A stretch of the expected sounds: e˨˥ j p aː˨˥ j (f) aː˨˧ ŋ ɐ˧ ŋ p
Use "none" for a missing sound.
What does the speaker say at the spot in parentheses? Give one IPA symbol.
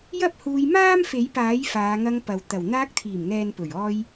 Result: f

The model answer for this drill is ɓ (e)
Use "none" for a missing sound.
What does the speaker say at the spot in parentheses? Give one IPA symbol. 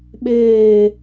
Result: eː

